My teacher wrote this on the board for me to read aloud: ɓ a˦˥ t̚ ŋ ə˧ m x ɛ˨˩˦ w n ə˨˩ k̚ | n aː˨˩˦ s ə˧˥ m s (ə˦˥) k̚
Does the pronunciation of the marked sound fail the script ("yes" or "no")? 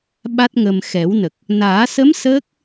yes